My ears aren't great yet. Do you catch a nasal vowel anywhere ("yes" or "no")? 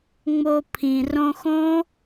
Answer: yes